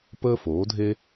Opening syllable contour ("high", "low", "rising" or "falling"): high